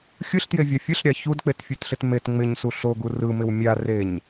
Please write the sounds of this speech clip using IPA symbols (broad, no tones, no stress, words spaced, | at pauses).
xʲɯɬtjevʲɑ fʲɯɬɾʲɑ çudk͡petfʲutɬɪt met ŋ͡mɪɲsu ɬoɡu rɯmɪw mʲa reɲ